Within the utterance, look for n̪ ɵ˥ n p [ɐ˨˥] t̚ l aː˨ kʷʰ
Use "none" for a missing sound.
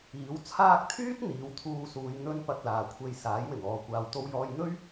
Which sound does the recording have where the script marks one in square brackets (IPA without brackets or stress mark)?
ɐ˧